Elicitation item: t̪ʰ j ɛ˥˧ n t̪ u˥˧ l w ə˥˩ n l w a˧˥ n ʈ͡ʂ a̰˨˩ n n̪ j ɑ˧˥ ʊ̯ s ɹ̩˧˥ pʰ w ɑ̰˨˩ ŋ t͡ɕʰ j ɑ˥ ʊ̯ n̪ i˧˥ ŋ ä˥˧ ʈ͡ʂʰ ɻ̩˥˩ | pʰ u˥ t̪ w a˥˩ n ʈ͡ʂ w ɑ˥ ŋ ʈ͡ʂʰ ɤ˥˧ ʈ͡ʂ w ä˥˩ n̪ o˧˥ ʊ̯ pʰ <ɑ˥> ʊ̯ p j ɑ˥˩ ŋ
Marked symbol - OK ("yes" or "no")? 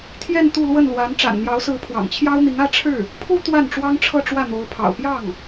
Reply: no